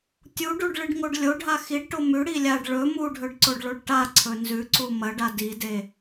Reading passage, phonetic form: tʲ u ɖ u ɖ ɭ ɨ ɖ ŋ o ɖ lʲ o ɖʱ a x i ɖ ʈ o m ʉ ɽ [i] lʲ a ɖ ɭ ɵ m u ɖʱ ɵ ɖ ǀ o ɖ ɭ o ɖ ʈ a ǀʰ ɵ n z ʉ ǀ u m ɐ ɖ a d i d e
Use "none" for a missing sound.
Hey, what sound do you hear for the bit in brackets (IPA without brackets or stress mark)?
i